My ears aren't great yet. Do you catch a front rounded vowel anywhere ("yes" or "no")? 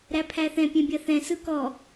no